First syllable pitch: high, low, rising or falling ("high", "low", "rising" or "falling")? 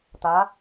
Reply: rising